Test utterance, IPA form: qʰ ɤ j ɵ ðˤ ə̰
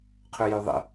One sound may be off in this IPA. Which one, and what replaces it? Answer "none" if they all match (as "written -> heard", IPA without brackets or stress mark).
ɤ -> ɵ